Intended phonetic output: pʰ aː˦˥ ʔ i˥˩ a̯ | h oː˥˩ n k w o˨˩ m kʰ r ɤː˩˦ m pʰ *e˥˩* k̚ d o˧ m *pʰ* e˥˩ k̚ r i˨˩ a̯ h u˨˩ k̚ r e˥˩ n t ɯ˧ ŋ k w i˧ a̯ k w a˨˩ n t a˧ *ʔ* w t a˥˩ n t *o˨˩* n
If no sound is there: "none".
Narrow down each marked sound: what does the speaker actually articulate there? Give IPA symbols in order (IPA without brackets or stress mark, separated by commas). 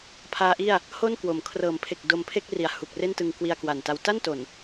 e˨˩, pʰ, none, o˨˩